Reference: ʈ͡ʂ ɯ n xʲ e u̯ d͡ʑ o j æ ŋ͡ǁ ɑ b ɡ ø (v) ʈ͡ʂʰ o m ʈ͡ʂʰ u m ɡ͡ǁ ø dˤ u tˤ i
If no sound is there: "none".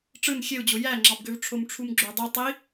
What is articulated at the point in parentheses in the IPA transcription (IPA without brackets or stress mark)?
v